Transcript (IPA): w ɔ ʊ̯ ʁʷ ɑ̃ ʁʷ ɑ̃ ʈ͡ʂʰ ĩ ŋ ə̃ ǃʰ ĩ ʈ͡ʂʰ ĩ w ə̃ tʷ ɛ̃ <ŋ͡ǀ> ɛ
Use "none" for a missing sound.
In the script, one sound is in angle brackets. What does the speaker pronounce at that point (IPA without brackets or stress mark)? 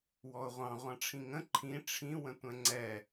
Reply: ŋ͡ǀ